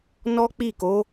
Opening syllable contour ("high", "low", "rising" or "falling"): high